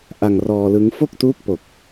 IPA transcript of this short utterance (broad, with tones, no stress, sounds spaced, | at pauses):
ʔ a˧ ŋ r ɔː˧ l ɯ˦˥ ŋ f o˥˩ k̚ t uː˦˥ k̚ p o˨˩ k̚